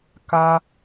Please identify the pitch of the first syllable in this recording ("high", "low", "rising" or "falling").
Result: high